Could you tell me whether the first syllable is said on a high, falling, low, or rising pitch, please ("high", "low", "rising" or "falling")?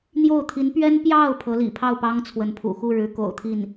falling